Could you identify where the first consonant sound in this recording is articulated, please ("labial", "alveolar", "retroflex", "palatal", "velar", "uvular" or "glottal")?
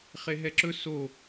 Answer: uvular